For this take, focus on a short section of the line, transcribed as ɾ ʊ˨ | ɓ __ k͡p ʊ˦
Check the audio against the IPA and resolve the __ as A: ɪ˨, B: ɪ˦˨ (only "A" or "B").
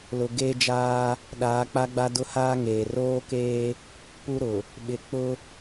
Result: A